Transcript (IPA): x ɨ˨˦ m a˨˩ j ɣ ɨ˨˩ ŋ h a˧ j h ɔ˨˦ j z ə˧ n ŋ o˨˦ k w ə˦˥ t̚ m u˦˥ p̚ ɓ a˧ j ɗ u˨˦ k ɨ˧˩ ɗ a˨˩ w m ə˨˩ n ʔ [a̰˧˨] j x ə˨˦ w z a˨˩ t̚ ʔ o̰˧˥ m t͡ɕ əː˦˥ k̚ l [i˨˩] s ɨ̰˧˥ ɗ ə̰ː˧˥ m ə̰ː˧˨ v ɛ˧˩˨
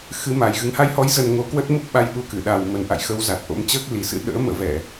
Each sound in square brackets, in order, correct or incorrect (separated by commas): correct, correct